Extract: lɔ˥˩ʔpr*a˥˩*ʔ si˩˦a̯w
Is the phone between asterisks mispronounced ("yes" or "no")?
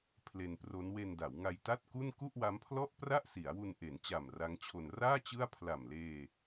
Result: no